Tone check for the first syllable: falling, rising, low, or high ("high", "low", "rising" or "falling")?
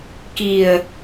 low